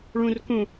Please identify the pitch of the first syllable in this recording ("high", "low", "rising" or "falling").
low